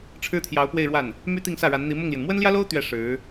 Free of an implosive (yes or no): yes